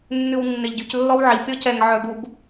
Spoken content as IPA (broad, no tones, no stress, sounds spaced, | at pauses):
nː ʉ w nː e ʎ ɟ y c lː ɔ w ʕ i pʲ ɔ c ɛ ŋ ʕ œ ɡ u ɡ